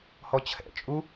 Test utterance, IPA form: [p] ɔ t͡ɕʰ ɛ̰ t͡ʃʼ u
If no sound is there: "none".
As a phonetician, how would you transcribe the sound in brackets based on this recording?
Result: h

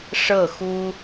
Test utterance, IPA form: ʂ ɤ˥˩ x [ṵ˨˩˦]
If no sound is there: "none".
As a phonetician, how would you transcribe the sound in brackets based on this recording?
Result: u˥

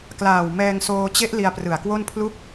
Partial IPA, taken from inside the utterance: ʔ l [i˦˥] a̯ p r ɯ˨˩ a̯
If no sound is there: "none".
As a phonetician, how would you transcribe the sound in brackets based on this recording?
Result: i˧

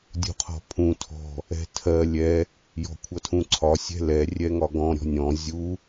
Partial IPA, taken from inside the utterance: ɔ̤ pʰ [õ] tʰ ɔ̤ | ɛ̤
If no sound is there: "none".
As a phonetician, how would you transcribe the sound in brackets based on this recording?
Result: ũ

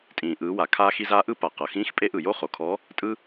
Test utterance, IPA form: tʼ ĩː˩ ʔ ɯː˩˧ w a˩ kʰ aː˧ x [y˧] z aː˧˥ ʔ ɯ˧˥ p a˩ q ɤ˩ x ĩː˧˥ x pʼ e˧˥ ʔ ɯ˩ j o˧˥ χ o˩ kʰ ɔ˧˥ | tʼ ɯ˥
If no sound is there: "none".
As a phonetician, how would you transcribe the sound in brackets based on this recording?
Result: i˧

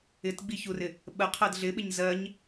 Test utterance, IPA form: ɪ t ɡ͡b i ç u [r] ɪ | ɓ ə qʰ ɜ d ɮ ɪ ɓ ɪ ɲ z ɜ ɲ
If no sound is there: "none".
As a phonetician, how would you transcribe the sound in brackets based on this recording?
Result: r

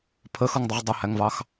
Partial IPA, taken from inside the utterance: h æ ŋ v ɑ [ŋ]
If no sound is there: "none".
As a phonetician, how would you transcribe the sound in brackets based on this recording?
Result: x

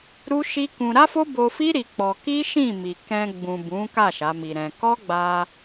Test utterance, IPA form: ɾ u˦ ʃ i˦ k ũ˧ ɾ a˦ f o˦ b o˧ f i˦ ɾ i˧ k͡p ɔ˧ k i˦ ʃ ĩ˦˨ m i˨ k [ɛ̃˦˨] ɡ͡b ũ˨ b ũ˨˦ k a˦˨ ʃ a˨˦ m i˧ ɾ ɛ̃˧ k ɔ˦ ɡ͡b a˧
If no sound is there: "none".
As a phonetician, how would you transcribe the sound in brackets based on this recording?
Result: ɛ̃˧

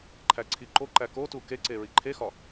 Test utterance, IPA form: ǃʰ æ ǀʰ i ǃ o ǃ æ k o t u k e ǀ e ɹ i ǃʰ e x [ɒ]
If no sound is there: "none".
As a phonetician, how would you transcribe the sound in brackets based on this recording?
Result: ɒ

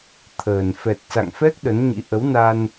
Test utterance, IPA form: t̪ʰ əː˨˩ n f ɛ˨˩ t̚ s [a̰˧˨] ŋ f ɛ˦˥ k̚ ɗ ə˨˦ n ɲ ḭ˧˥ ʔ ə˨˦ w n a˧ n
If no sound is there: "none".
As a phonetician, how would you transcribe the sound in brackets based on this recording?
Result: a̰˧˨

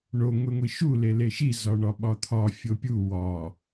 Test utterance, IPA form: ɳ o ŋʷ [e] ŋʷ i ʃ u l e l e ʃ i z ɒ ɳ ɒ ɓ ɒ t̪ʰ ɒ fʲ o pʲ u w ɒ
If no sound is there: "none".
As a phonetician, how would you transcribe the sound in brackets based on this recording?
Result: e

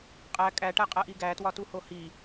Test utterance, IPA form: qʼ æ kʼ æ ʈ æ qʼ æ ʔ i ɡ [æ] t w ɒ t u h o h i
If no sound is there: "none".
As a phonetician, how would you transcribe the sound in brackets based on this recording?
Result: æ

